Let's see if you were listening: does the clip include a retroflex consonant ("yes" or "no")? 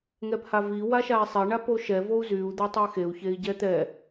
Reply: yes